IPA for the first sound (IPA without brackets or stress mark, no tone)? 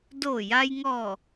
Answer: d